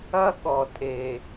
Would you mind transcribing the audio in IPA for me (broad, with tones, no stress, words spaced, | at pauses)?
ɐ˦ ɠɔ˨tʼe˨